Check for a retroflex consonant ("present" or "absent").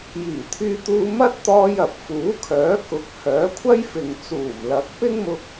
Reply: absent